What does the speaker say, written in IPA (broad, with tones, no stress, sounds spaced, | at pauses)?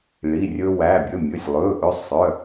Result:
ɭ i˩˧˩ rʲ ɵ˧ w æ˩˧˩ bʲ ɵ˩˧˩ mʲ ɵ˩˧˩ sʲ lˠ ɵː˩˧˩ ʔ ɵ˧ sˤ œ˩˧˩